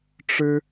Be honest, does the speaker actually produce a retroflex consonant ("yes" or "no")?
yes